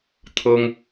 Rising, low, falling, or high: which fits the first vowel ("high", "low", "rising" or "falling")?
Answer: high